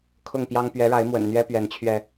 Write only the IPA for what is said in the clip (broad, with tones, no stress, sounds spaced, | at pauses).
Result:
kʰ ʊ˥˨ ŋ p j ɑ˦ ŋ p ɥ ɛ˨˦ ɻ a˨˦ ɪ̯ m w ə̰˨˩ n n̪ ɥ ɛ˦ p ɥ ɛ˨˦ n t͡ɕʰ ɥ ɛ˧